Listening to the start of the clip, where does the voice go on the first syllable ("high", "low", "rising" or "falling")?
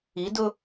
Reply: rising